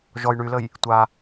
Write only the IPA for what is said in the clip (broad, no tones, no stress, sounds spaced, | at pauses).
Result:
ʒ ɔ j ɳ y l ə j | tʷ a